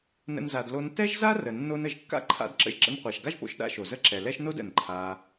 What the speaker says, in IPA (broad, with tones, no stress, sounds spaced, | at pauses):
n ə̰˦ n z a˧ d l o˧ n t ɛ˦ ʒ z a˦ r ə˨ nː o˧ n ə˨ ʒ kː a̰˦ ǃʰ a̰˧ d ǁ ə̰˧ ʒ ǁ ə̰˧ n qʷ a˨ ʃ ɡ a˦ ʒ p o̰˧ ʃ ɗ a̰˦ ʃ o˨ z ə˦ ǁ ɛ˨ l ɛ˦ ʃ n o˦ d ə̰˨ n ǃʰ a˧